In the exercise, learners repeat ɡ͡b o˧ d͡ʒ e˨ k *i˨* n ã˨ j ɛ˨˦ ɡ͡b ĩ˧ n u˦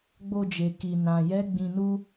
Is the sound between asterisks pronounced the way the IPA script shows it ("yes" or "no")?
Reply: yes